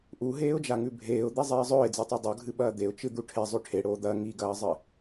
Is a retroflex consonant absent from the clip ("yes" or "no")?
no